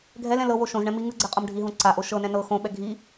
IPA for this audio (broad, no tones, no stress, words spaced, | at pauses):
ɡʱɛlɛ̃ lɤ woʃõzɳɛ̃ mi ŋɯɡ͡ǀɛ qʼɤmɖʱiɦõ ǀaʔo ʃɤnɛ̃ nɤ xõɓɛ ɡʱi